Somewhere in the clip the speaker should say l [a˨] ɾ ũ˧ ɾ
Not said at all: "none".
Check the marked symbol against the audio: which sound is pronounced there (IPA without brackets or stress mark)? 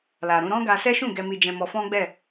a˨